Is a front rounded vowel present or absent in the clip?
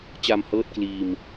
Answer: absent